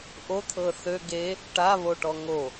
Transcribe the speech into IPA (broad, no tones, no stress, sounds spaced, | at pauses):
ʔ o t̪ʰ ɤ θ ø ɡ e | ʈ a β o ʈ ɔ ŋ o